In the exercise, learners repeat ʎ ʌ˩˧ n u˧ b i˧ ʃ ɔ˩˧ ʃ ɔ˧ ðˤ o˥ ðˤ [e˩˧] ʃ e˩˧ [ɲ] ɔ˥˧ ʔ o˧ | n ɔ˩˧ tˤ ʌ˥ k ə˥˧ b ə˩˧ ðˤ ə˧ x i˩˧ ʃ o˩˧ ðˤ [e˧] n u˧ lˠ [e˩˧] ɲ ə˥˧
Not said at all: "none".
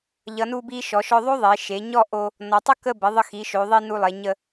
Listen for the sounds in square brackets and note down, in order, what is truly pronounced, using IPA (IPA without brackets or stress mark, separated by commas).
e˩˧, ɲ, i˧, e˩˧